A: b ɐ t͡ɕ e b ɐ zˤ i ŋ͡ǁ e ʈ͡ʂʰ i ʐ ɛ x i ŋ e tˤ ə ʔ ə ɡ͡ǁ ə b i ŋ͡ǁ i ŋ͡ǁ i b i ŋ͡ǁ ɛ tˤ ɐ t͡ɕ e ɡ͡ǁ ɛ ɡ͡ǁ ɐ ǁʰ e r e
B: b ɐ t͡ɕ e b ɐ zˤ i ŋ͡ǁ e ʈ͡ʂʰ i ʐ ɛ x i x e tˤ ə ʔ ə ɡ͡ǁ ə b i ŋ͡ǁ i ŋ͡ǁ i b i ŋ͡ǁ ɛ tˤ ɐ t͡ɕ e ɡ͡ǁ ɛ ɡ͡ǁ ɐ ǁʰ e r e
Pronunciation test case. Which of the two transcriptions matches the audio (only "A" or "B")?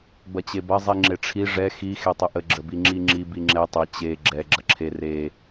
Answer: B